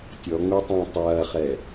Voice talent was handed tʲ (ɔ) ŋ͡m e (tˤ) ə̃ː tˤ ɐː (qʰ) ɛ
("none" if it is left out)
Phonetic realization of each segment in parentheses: ɔ, tˤ, χ

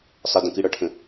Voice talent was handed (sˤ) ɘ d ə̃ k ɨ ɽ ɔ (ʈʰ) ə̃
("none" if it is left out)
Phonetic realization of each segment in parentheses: sˤ, ʈʰ

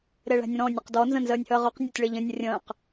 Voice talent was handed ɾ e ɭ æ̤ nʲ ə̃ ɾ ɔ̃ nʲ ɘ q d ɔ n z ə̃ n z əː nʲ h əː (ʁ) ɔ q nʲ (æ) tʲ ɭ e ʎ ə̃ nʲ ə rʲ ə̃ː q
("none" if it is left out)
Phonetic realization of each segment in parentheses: ʁ, æ

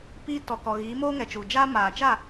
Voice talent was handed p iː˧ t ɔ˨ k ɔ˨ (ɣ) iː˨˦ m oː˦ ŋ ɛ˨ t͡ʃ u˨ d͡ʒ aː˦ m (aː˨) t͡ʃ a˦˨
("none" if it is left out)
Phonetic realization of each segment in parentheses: ɣ, aː˨

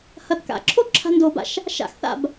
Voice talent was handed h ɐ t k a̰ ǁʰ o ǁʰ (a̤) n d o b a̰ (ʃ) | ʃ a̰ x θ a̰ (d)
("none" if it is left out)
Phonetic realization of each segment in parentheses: a̤, ʃ, b

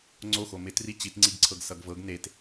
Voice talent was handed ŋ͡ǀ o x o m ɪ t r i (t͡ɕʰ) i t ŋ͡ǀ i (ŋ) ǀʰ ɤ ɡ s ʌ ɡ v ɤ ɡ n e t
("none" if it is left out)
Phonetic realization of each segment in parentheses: t͡ɕ, ɡ

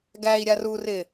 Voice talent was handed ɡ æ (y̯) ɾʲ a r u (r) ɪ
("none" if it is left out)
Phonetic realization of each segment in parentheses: i̯, r

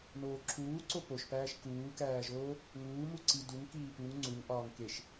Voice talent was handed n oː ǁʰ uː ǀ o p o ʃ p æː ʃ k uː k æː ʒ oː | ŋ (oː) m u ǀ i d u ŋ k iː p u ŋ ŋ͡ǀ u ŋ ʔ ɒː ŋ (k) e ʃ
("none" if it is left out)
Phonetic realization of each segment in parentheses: uː, k

